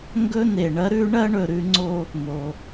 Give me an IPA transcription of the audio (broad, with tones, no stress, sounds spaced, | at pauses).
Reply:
ŋ ɡ ɵ˥ n̪ e˩ ɳ ɐ˧˥ ɾ ʉ˧˥ ɳ ɐ˥ ɳ ɵ˩ ɾ ʉ˩˧ ŋ͡ǀ o˧ | m o˩